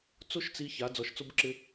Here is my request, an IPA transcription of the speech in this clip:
t͡s o˦ ʃ t͡s i˧ ç a˨˦ d͡z ɔ˧ ʃ t͡s o˦ b ǁ ɪ˦

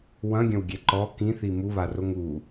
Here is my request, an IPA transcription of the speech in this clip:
w ɐ̃ ɡʲ ɐ̃ w ɡʲ ɛ ǃ ɔ k ĩ θ i m u β a r o ŋ u

